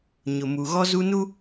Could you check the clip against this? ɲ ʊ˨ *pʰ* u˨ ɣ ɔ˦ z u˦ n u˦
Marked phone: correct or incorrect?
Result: incorrect